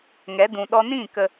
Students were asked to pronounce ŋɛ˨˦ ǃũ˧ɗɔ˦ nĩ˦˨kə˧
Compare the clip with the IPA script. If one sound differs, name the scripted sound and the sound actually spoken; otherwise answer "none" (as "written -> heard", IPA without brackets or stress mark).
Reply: ǃ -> d